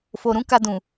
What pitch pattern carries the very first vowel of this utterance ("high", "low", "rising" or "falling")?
low